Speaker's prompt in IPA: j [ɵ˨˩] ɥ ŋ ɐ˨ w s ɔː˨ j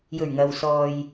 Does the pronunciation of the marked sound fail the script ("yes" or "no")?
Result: no